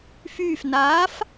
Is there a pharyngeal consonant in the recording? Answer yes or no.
no